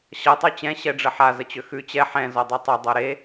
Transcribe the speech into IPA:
ɕ ʌ tˤ ʉ t͡ɕ ɛ̃ ɕ ɛ ɖ͡ʐ ə ħ a z ə t͡ɕ ø x ʉ t͡ɕ ɛ ħ ɛ̃ z ɔ dˤ ʉ tˤ ɐ dˤ o ɾ e

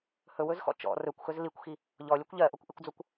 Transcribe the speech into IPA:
h ɵ w ɵ z x ɔ̰ t͡ʃ ɔ̰ r ɵ kʷ x ɵ z l i kʷ x i | ʎ ɔ lʲ o kʷ ʎ ɜ ʔ o kʷ ʔ i kʷ d͡z o kʷ

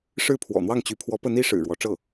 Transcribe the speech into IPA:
ʂ ɻ̩˥˩ pʰ w ɔ̰˨˩ n̪ w ɑ˥˩ ŋ t͡ɕ y˧˥ pʰ w ɔ˧˥ p ə˧˥ n i˧˥ ʂ ɻ̩˨˩ ɻ w ɔ˧˥ ʈ͡ʂ ɤ˥˩

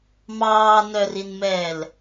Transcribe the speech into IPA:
m ɑː n œ r i n m ɛː l

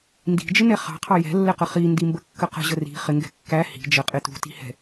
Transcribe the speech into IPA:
n d i̤ d͡ʒ ɪ n ɛ χ ɑ̤ qʰ ɑ j ɛ̤ lː ɛ q ə χ i n d i m b ə kː ə q ə̤ ʑ ə r i̤ χ ɪ ŋ ɡ ɛ̤ kː æ h i̤ d͡ʒ ə qʼ ɪ t ṳ t i̤ h ɛ̤

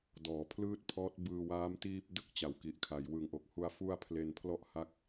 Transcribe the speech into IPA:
d ɔː˩˦ pʰ l ɯː˥˩ t̚ pʰ ɔː˦˥ t̚ b ɯː˧ w aː˦˥ m t iː˥˩ p̚ d ɯ˥˩ k̚ t͡ɕ a˩˦ w k i˨˩ ʔ kʰ a˩˦ j w ɯ˨˩ ŋ ʔ o˨˩ k̚ h u˧ a̯ f u˥˩ a̯ pʰ l e˧ n pʰ l ɔ˥˩ ʔ h a˦˥ k̚

